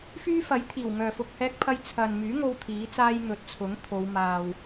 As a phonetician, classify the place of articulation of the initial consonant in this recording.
labial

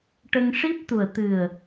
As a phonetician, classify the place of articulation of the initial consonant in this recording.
retroflex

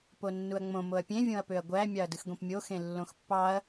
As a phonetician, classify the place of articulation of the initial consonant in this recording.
labial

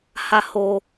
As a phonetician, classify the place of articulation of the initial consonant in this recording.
glottal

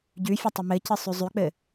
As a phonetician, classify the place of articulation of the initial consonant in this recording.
palatal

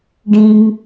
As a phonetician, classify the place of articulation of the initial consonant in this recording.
retroflex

